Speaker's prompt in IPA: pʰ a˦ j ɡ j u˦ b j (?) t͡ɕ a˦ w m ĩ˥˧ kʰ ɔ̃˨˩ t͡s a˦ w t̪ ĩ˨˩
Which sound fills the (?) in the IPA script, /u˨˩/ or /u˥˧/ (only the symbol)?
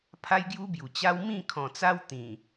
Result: u˨˩